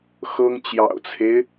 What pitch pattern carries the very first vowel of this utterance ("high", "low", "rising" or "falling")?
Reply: high